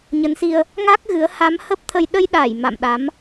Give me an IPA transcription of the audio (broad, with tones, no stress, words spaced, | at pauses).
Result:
ɲə˨˦nsi˧ə̯ | ŋa˦˥k̚ ɣɨ˨˦ə̯ ha˨˦mhə˦˥p̚t̪ʰə˧j ɗə˧jɗa˧˩j ma̰˧˨mɗa˨˦m